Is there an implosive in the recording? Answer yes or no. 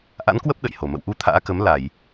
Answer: yes